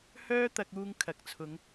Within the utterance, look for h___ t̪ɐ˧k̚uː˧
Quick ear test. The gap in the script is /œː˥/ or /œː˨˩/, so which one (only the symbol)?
œː˥